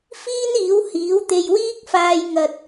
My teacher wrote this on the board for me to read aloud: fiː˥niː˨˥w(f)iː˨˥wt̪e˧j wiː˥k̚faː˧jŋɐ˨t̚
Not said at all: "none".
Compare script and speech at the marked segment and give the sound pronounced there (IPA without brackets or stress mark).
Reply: h